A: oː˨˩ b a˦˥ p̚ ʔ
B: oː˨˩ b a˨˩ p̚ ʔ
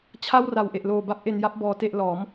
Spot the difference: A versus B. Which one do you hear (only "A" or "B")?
A